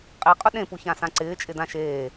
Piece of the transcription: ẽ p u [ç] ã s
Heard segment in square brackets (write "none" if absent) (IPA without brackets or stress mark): ç